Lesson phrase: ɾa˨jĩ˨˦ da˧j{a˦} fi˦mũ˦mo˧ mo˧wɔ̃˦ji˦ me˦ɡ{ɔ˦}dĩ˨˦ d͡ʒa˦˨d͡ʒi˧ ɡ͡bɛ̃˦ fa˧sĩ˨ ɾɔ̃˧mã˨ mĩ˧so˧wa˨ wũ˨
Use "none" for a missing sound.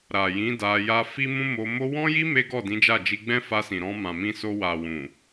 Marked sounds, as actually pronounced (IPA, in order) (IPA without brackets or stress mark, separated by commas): a˦, ɔ˦˨